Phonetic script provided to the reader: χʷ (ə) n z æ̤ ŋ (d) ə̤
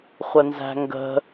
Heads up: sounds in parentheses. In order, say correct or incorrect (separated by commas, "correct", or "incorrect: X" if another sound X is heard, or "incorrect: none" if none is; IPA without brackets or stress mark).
correct, incorrect: ɡ